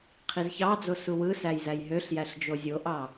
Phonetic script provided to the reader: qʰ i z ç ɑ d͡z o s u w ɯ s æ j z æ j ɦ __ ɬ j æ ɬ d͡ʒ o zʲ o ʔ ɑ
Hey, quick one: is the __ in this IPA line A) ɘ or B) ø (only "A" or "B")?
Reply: B